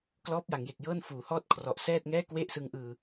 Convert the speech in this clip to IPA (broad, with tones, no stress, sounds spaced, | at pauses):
k l ɔː˦˥ p̚ j a˩˦ ŋ j e˨˩ k̚ j ɤː˥˩ n f uː˩˦ h ɔː˥˩ t̚ kʰ r ɔ˨˩ ʔ s ɛː˥˩ t̚ ŋ ɛː˥˩ k w e˥˩ ʔ s ɯ˦˥ ŋ ʔ ɯː˧